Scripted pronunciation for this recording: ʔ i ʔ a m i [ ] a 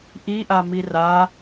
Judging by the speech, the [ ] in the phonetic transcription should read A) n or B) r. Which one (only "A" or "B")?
B